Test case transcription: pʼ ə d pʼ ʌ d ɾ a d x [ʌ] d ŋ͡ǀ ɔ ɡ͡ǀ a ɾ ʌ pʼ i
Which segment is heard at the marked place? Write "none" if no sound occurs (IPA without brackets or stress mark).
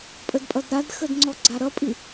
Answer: ə